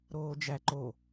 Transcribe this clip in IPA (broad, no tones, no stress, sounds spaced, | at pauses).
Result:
ɾ oː d͡ʒ æ ǃ o